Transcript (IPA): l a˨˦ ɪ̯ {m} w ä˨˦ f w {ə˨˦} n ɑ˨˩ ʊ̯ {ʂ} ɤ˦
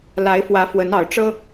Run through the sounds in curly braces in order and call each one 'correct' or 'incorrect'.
incorrect: f, correct, incorrect: ʈ͡ʂ

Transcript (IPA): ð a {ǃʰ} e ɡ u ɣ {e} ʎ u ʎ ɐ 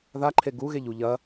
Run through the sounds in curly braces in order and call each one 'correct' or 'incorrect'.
correct, correct

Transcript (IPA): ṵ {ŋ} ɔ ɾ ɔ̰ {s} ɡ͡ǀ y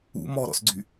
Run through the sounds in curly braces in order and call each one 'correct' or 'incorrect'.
incorrect: m, correct

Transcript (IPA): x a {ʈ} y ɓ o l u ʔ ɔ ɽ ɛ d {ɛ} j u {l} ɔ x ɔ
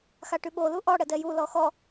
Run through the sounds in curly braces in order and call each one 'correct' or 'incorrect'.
correct, correct, correct

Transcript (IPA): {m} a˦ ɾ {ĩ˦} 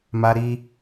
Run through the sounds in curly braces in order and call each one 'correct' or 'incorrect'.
correct, incorrect: i˦

